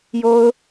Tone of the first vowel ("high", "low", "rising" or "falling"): high